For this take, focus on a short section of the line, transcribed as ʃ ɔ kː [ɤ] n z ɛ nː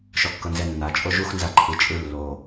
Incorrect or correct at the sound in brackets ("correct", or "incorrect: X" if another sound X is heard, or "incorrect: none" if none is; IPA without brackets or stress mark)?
correct